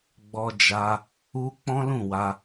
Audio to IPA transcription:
ɡ͡b ɔ˧ d͡ʒ a˧ | u˧ k͡p ɔ̃˦ l ũ˦˨ w a˧

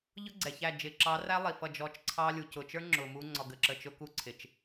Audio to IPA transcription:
ʎ ʊ˦ ɡ͡ǀ ɛ˨ ç æ˦˨ d͡ʒ ɪː˨ ǁ ɑ˨˦ r æ˦ lˠ i˨ f ʌ˦˨ d͡ʒ ɔ˦˨ t͡ʃ ǀʰ ɑ˦ lʲ u˨ c ʊ˨ t͡ʃ ə˞˦ ŋ͡ǁ ʊː˨ m uː˦ ŋ͡ǀ ɔ˨ ɡ ə˨ ǁ ə˨ t͡ʃ ʊ˦ k u˦ ǀʰ ɪ˨ t͡ʃ

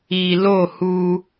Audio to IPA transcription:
i˨ l o˦˨ h u˦

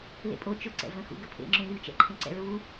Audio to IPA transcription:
l ḛ pʼ o t͡ʃ ʊ ǀ ɛ̰ v ə̃ x ṵ ɡ ə pʰ ḛ ŋ͡ǁ ũ lʲ u t͡ʃ ɛ̰ ǃʰ ẽ ǀ ɛ̰ ɹ u

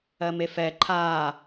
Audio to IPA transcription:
ɜ m e f ɛ ǃʰ aː

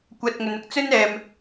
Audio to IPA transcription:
kʷ ɐ˧ t̚ ŋ ɵ˨ n ʊ˨ k̚ t͡s ɵ˥ n ɛː˨ m

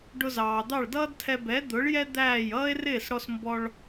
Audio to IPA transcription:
ɖ ʊ˧ z ɑː˩ d̪ ɑ˥˩ ɭ d ʌː˥ d tʰ ɛ˧ b ɛ˩˥ d̪ ʊ˩˥ ɭ j ɛ˥ d̪ æː˥˩ j ʌː˥ e̯ r ɪː˥˩ s ɽ ɔ˧ s m b ɔ˧ ɭ

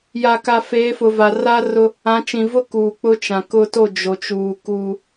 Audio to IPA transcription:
j a˨ k a˨ f eː˨˦ f ʊ˨ v a˨ r a˦ r ʊ˦ | ã˨˦ t͡ʃ ĩ˨ v ʊ˦ k uː˨ k͡p ʊ˦ t͡ʃ ã˨ k ʊ˦ t o˦˨ d͡ʒ o˨ t͡ʃ uː˨ k uː˦

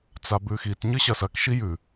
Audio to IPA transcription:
t͡s a b ʉ x i t ɲ ɨ ɕ ɐ s ɐ k ʃ i j ʉ

